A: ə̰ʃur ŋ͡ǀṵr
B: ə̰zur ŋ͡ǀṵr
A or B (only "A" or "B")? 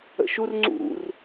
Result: A